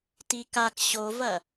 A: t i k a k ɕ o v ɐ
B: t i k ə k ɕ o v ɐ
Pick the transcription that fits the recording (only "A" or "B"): A